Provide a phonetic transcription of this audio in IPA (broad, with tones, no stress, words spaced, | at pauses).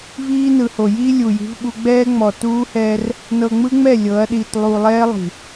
viː˦nɯ˨ho˨ ji˦ lʲu˨ji̤˦vɓu˦ ɡ͡bɛː˦ ŋ͡mɔ˨tuː˦hɛː˦r | nɤ˨ŋ͡mɯ˦ŋ͡mɛ˦˨ lʲɤ˨˦ɐ̯ɗiː˨t lˠuː˨lˠɛː˦ lˠi̤˨